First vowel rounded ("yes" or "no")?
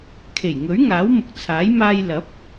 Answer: no